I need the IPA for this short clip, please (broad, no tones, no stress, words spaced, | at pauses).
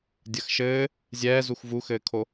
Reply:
dʲɐxʃɘː | zʲɛːzux vuxɘːkʰo